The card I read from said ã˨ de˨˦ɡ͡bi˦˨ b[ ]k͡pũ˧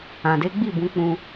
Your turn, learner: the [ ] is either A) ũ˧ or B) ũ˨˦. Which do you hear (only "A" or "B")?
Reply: B